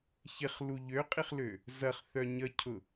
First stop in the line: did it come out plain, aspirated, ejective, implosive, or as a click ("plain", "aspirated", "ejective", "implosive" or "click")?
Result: ejective